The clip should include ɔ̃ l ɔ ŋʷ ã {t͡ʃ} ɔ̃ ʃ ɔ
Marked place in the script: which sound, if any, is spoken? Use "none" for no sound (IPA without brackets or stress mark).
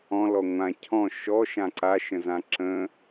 cʰ